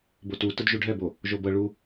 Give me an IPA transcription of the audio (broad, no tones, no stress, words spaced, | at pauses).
botu tɯdʒuɖʱɛbo | ʒobɤ ɭu